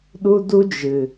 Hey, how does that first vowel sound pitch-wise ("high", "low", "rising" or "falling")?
high